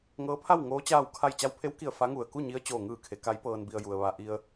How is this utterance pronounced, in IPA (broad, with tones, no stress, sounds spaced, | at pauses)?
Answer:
ŋ ɤː˧˥ pʰ a˥˨ w ŋ oː˧˥ t͡ɕ aː˥˨ w kʰ a˥˨ j t͡ɕ a˧ w pʰ e˧˥ w k i˧˩ ə̯ f a˧˥ ŋ u˧˩ ə̯ k u˥˨ ɲ i˧˥ ə̯ t͡ɕ oː˧˩ ŋ ɯː˧˩ kʰ e˩˧ k a˧˥ j p ɤː˧ n b i˧ ə̯ j u˧ ə̯ ʋ a˧ ʔ i˧ ə̯